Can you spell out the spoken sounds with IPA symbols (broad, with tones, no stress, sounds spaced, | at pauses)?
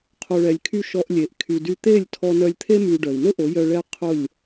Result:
qʰ o˨ ɭ ɛ˨ lʲ kʰ y˧ ʃ ɔ˧ ʔ lʲ e˨ ʔ kʰ y˨ d y˧ t̪ e˦˨ lʲ tʰ ɔ˧ n œ˧ lʲ t̪ʰ e˦ m y˧ ɖ œ˨ i̯ n ʊ˦ ʔ o˨˦ j œ˧ ɭ ɛ˦ qʰ ʊ˦˨ lʲ